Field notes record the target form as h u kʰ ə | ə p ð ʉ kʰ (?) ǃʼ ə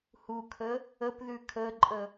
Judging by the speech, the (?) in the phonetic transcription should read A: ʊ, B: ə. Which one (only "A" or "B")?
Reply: B